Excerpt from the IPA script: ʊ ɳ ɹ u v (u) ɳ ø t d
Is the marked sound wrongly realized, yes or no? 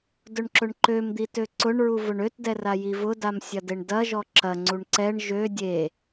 yes